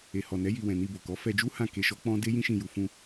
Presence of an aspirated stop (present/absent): absent